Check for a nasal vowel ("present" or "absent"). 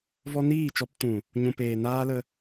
present